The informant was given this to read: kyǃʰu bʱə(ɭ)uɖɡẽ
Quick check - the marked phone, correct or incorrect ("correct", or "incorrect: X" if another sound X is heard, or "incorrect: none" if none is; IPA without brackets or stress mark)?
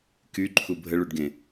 correct